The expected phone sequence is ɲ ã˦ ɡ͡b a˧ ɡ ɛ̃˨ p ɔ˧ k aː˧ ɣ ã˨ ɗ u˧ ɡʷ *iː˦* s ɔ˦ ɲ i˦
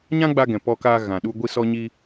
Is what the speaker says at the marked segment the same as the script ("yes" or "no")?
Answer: no